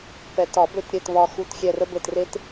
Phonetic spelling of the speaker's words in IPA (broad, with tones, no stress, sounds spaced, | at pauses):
p ɛ˨˩˦ t ɒ˨˩˦ b ø˦˨ t ɾʲ ɘ˦˨ t β ɒ˦˨ x u˦˨ t xʲ ɛ˦˨ r ə˥ b ɘ˦˨ t r e˥ t